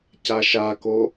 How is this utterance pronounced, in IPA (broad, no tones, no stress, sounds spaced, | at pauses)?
c a ʃ a k o